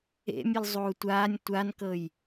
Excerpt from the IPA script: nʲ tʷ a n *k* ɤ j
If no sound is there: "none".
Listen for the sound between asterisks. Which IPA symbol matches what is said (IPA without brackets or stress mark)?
k